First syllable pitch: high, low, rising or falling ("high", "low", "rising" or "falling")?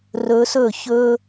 rising